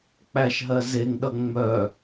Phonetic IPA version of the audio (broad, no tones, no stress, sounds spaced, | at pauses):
k͡p æ ʃ ɦ ɜ z e ŋ ɗ ʌ ŋ͡m œ